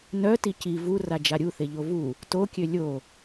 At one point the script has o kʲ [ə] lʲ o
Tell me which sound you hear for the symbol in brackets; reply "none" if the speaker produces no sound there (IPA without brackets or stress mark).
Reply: ø